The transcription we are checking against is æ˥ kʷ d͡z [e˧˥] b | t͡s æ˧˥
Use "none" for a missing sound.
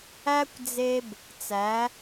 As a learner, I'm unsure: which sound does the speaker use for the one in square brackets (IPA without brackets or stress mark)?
e˥